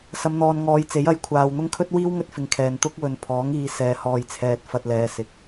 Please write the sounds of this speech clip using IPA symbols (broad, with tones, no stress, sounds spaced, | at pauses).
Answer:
s ɐ˨˧ m n̪ ɔː˨ n ŋ ɔː˨˧ j t͡s e˨˥ j ɐ˨˥ j kʷʰ aː˨ w n̪ ʊ˥ ŋ kʰ ɵ˥ t̚ w iː˥ w ŋ ɵ˥ t̚ f ɪ˨˧ ŋ kʰ ɛː˨ n t̪ ʊ˥ k̚ w ɵ˨ n pʰ ɔː˨˥ ŋ iː˨˧ s ɛː˨ h ɔː˨ j t͡sʰ ɛː˨ t̚ f ɐ˧ t̚ l ɛː˨˧ s ɪ˨ k̚